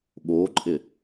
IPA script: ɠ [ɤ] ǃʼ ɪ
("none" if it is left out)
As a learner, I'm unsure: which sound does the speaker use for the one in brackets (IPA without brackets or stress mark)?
o